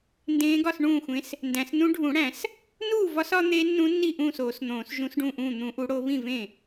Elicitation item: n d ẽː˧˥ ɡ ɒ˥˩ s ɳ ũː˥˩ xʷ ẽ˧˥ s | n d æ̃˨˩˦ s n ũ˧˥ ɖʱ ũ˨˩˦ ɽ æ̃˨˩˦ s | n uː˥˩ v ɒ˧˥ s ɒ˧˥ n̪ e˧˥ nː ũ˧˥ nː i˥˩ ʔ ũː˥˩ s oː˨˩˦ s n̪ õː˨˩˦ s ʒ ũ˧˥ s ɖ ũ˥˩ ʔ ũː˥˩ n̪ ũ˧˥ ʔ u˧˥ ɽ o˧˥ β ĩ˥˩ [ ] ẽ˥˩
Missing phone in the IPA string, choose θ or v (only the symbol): v